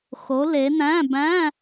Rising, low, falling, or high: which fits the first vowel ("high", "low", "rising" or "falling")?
rising